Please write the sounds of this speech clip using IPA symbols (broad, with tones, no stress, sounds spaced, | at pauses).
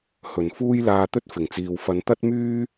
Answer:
h ɵ˨˩ n f uː˥ j l aː˧ t̪ ɵ˥ t̚ f ɪ˨˩ ŋ t͡s iː˨ w f ɐ˨˧ n t̪ ɐ˥ t̚ m yː˥